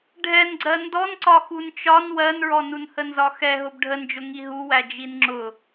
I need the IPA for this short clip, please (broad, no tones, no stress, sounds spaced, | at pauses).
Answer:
ɖʱ ɛ n ɡ͡ǀ ɜ n d ɔ n ǀ ɒ x u n t͡ʃ ɒ n w ɜ n ɹ ɔ n u n h ə n z ɒ x ɛ ɦ ʊ b ɖʱ ə n d͡ʒ ʊ ŋ i ɦ u w æ d͡ʒ i n ŋ͡ǁ ʊ